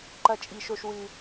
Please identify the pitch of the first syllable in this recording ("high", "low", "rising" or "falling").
low